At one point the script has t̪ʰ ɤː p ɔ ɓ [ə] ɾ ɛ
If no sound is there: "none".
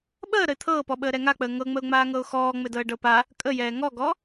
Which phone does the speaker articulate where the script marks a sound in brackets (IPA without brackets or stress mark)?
əː